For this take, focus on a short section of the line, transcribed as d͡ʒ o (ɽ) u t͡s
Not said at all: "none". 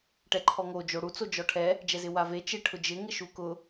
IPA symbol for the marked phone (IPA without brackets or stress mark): ɽ